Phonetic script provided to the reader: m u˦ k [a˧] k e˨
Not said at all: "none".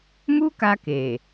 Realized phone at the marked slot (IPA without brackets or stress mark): a˧